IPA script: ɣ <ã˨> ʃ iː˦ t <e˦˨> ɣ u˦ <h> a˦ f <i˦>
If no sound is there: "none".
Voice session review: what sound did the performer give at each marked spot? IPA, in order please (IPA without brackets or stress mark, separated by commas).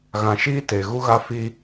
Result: ã˨, e˨, ɣ, i˦